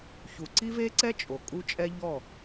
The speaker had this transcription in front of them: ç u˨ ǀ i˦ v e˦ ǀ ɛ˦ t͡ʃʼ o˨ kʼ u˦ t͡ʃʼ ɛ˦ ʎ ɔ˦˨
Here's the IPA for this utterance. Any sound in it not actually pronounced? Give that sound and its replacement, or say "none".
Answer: none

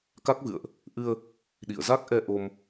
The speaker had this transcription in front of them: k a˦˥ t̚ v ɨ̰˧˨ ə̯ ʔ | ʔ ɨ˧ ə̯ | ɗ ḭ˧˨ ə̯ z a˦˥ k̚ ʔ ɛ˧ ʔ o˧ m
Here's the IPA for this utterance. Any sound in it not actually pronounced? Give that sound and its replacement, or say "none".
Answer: t̚ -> k̚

